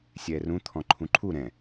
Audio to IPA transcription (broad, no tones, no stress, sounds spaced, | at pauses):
sʲ ɛː r ũ t̪ʰ ɔ̃ ǃʰ ũ ǃʰ u ɾ ɛ̃